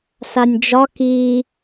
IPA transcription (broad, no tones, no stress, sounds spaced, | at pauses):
s a nʲ d͡ʒ ɒ k i